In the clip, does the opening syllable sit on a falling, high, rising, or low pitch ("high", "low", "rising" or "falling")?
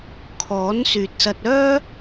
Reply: rising